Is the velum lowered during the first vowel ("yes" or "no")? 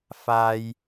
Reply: no